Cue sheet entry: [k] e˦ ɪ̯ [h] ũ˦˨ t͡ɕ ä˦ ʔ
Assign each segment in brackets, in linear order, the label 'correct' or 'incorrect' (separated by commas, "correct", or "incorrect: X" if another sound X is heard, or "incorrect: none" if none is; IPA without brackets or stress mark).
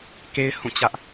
correct, correct